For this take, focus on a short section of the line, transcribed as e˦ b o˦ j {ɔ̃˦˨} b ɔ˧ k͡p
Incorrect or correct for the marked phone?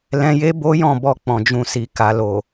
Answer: correct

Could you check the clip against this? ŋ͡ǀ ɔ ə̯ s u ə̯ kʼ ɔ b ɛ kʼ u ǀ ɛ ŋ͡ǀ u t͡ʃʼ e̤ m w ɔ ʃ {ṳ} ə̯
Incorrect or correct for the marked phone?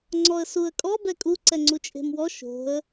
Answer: incorrect: o̤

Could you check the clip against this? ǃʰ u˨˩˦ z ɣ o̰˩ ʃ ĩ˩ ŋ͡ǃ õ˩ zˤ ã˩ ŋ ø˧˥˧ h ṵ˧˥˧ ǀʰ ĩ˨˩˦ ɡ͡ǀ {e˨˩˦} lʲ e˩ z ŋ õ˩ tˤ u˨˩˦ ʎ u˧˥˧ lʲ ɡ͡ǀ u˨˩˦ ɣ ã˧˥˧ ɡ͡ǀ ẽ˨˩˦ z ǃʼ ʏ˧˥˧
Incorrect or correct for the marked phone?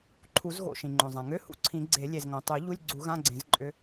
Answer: correct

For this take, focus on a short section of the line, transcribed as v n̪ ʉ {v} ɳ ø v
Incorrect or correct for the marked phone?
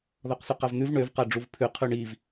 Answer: correct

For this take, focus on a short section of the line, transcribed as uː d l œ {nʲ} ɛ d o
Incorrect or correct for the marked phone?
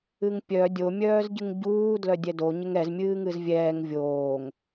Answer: incorrect: dʲ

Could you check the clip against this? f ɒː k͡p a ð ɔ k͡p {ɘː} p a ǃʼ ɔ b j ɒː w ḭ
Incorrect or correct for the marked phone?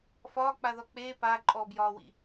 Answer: incorrect: eː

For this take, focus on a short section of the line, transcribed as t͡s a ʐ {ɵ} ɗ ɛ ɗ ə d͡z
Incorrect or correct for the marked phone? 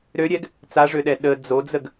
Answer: incorrect: ø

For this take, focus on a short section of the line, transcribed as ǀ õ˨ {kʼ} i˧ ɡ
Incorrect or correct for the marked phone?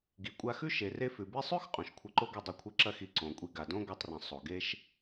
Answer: incorrect: kʷʼ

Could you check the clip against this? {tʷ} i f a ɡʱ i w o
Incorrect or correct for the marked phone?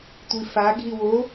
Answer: correct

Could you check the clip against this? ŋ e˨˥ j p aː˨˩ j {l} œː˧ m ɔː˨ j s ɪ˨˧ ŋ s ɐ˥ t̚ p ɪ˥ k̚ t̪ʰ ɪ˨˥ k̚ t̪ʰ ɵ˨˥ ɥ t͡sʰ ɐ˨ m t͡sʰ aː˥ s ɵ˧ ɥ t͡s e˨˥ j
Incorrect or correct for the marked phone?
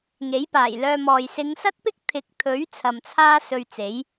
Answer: correct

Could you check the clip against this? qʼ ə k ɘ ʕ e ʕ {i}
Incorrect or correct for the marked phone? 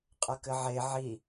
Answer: correct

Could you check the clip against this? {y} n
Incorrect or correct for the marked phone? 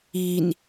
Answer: incorrect: i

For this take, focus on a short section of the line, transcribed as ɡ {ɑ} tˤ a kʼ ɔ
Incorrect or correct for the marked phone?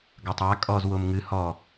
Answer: incorrect: ɐ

